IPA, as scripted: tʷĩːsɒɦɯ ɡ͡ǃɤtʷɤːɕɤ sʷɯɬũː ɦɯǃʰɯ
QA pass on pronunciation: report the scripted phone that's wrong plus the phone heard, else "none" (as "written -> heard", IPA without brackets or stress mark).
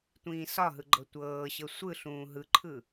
none